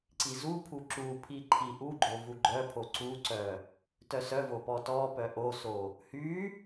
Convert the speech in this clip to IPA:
ǀ i z u pʰ u ǁ u pʰ i ǃʰ i ʔ u ɡ͡ǃ o v u ɡ͡ǃ œ pʰ o ǀ u ǀ œ | t œ s œ v o p ɔ t ɔ p œ ʔ o s o | h y

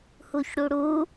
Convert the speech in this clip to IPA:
h u ç ɽ u ɽ u

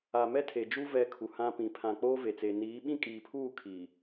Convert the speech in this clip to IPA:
a˨ m ɛ˦ tʰ e˨ d͡ʒ u˦ v ɛ˦ kʰ u˨ h ã˦ p ĩ˨ pʰ ã˨ k͡p oː˦ v e˨ t͡s e˨ n iː˨˦ ɓ ĩ˦ kʼ iː˨ pʰ uː˦˨ kʰ iː˨

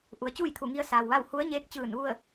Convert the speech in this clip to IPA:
ʔ u˩˧ ə̯ t͡ɕ uː˥˨ j t̪ʰ u˧˩ ŋ i˧ ə̯ s aː˩ w ʋ a˥˨ w h u˧˥ ə̯ ɲ eː˧˥ k̚ t͡ɕ ɯː˧˩ n ʋ u˥˨ ə̯

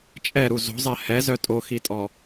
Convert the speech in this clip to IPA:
t͡ʃʼ ɛ ɾ u z o̤ zˤ ɛ h ɛ z œ tʼ o x i tʼ ɔ

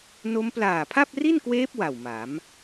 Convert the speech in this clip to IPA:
n o˦˥ m p l aː˨˩ pʰ a˥˩ p̚ r i˥˩ n k w eː˦˥ p̚ w a˨˩ w m a˩˦ m

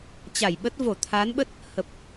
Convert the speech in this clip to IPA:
t͡ɕ a˧˩ j ɓ ə˦˥ t̚ v o˧˩ t̪ʰ a˨˦ n ɓ ə˦˥ t̚ | h ə˨˩ p̚

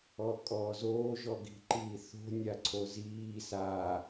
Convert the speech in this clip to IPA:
ɔ kʼ ɔː z oː ʒ ɔ ɡ i̤ ǃ iː θ o̤ nʲ a ǀʰ o z iː s a

